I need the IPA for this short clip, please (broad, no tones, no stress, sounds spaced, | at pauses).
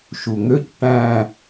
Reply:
ʃ u ŋ ø c ʈ æ̃